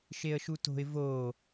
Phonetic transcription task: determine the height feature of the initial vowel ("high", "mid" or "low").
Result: mid